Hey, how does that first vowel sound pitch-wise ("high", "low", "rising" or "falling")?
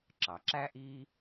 low